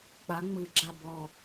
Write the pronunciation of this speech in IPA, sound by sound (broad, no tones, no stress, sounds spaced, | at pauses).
k͡p a ŋ͡m ɯ ɡ͡ǁ a b ɔ